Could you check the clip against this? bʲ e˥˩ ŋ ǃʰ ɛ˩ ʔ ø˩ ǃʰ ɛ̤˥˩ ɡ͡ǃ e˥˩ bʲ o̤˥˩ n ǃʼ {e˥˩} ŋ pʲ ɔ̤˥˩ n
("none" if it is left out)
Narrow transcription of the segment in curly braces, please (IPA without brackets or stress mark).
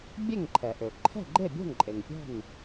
e˩